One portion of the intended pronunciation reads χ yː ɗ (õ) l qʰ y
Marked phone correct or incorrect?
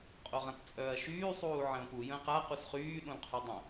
correct